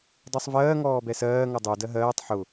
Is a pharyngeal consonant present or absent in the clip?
present